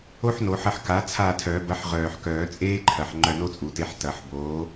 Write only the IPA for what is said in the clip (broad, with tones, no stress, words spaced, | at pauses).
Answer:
o˥ħno˨˩˦ħɐ˦˨ħ ka˨˥ t͡sʰa˦˨tʰœ˨˩˦bɐ˨˥ħ ʁœː˨˩ħkœː˨˩˦t͡sʼeː˥ǃʰɐ˨˩ħ ŋ͡ǃœ˦˨no˥t͡sʼu˨˩˦te˨˥ħ tɐ˨˩˦ħboː˨˥